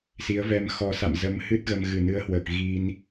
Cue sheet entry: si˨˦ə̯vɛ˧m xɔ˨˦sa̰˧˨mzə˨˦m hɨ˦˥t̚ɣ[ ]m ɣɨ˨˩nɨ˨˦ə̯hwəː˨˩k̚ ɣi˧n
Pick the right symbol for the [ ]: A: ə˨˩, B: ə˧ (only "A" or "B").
B